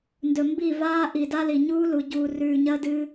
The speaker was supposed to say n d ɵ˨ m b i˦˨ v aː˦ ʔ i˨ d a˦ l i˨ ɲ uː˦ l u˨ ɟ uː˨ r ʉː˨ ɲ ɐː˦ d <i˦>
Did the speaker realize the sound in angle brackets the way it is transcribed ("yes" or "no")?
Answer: no